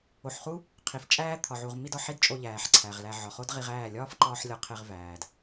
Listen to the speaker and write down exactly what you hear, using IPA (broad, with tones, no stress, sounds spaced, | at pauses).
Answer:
o˨ ħ χ u˦ | qʰ i˨ f t͡ʃʼ æː˦ t̪ʰ ɒ˨ ʕ u˨ ʁ m i˧ d ɒ˨ ħ i˦ d t͡ʃʼ o˧ ʎ æː˨ ħ ǀʰ æ˨ ʁ l æ˧ ʕ ɒ˨ χ o˦ d ʁ i˧ ʁ æː˦˨ lʲ ɒː˦ f ǃ ɒː˧ ħ lʲ ɒ˧ qʰ e˧ ʁ v æː˨ d